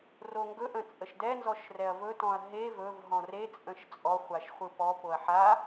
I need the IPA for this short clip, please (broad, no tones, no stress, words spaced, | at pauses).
roŋɡɵ ʔə̃t͡sʼəʃdɛ nzɔʃrɛɐ̯vɵ tɔ̃ɐ̯ɦe vɵv ɦɔ̃re t͡sʼə̃ʃt͡sʼɔ χʷaʃχʷɯpɔ poɐ̯ħa